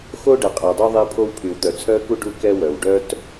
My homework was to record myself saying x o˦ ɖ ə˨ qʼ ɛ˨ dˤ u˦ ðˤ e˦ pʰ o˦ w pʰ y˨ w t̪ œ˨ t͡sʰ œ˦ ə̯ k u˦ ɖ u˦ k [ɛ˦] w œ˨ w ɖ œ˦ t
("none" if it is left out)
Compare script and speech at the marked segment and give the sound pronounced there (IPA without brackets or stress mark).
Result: ɛ˦